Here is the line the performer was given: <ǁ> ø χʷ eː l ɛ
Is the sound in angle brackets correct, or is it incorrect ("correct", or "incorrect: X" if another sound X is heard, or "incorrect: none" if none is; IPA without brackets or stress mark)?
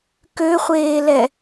incorrect: k